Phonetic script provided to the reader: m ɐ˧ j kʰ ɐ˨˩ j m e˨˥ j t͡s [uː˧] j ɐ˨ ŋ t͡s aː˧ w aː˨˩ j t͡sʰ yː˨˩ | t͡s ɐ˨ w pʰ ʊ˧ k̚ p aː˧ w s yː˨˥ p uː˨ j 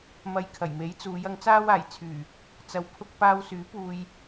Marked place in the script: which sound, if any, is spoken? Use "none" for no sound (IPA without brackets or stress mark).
uː˨˧